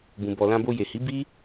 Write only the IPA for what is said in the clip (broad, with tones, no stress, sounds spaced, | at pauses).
b ũ˨ b ɔ˨ l ã˧ b o˧ j e˨ h i˨˦ b i˦